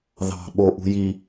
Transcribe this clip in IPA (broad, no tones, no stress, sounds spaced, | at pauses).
ð ɑ̤ ɓ o ʔ ṳ j i